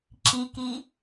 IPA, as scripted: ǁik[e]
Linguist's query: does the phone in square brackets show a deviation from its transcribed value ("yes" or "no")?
yes